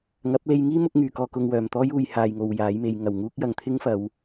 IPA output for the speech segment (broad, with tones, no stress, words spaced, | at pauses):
ŋɐ˨˥p̚le˧j ŋiː˥ mʊ˧k̚ŋyː˨˩kɔː˨ kʊ˨ŋwœː˨˩mt̪ɔː˥j uː˨j haː˨jŋo˨w jaː˨˥jme˨˧j ŋɐ˨˩wŋuː˥k̚ jɐ˨ŋ t̪ʰɪ˥ŋfɐ˨˧w